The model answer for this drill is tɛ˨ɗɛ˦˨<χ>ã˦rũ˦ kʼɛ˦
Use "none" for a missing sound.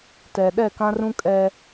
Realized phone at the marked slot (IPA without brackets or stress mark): k